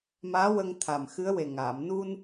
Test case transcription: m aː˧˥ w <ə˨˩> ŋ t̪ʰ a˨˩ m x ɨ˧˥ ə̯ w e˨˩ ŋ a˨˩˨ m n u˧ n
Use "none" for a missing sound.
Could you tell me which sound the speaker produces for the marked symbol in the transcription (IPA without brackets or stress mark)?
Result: ə˧